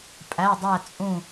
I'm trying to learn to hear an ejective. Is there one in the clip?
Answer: yes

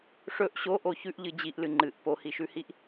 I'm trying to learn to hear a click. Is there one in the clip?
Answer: yes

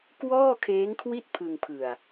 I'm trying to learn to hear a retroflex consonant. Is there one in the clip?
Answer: no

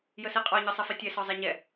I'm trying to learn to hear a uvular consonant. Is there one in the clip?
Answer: yes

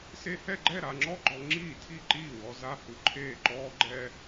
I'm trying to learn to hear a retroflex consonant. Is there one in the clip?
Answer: no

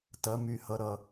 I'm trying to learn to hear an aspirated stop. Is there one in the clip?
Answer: no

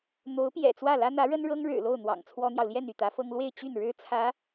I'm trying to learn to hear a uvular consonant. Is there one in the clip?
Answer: no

